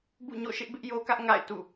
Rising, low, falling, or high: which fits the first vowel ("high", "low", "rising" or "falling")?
falling